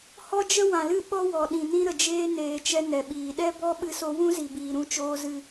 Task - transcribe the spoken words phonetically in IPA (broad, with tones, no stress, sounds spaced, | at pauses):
h ɔ˦ d͡ʒ ə˦ w ã˨ l ɨ˦˨ ɓ ɔ˦ w ɔ˨ ɗ ĩ˨ n ĩ˧ ɾ ə˨ d͡ʒ eː˧ n eː˨ t͡ʃ ɛ˧ n ɛ˨ ɓ iː˨ ɗ ɛ˦ b ɔ˦ ɓ ɨ˧ s o˧ w ũ˦ z i˨ b iː˨ ɾ ũ˦ t͡ʃ oː˦ z ɨ˦